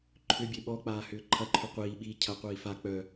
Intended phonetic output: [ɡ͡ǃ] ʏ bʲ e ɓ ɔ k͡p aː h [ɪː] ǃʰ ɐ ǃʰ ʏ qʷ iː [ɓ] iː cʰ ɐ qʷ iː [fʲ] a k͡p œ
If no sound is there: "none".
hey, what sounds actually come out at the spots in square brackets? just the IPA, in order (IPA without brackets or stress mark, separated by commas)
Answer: ǃʰ, ʏː, ɓ, f